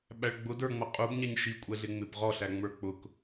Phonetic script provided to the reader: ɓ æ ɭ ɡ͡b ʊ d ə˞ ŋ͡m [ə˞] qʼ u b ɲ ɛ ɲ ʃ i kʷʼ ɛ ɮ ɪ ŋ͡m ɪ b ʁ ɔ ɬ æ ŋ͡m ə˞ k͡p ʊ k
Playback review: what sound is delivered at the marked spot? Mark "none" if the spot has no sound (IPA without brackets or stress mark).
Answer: ʌ